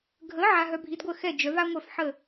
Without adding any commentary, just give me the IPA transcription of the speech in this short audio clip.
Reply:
ɡʱə˩˥ ʕa˧ɦœ˧bʱi˩˥dɡʷə˥˩ xɛ˥˩d͡ʒœ˩˥va˥ŋʷœ˥˩f ħə˥˩

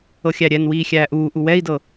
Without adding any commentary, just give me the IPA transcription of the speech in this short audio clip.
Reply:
ɤxʲæɾʲɛnwiː xʲæːʔuːʔu wɛi̯dɤ

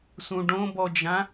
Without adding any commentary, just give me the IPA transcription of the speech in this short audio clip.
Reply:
sũɖõbɔd͡ʒã

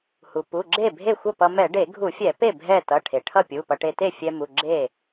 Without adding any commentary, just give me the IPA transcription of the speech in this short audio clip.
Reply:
hu˩pu˩˧˩ɡ͡ǁe˥˩ bʱe˥˩xʷʌ˥˩pʌ˧ mɛ˧˩˧ɖe˧˩˧ɡʱu˧˩˧fʲɛ˧˩˧ pe˥˩ bʱɛ˥˩ tʌ˩˧˩ʈʰe˩ ʈʰʌ˥˩pʲu˩˧˩pʌ˧˩˧ʈe˧ te˥˩fʲɛ˧ mu˩˧˩ɡ͡ǁe˥˩

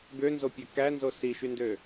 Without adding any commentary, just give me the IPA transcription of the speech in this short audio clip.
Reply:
ɡønzopʲæ kænzo siʃyndø

